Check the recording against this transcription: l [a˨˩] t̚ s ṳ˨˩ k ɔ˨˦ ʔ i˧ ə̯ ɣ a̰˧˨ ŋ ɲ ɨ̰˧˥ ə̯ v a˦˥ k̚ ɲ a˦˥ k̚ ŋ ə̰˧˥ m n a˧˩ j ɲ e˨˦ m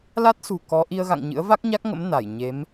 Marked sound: incorrect: a˦˥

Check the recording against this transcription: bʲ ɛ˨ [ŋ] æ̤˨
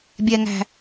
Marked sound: correct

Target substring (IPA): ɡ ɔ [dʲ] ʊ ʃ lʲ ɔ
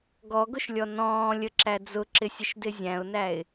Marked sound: incorrect: ɡ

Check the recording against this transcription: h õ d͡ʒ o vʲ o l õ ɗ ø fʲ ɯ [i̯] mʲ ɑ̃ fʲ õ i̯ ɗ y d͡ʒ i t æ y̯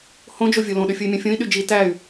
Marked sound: correct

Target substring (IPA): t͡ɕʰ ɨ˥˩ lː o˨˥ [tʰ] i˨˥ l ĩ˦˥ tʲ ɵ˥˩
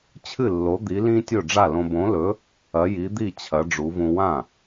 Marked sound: incorrect: d̪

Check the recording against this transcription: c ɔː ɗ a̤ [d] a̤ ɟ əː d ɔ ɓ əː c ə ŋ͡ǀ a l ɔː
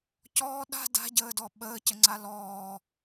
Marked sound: correct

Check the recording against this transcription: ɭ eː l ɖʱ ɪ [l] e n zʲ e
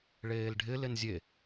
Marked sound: correct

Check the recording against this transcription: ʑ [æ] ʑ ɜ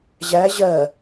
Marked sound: correct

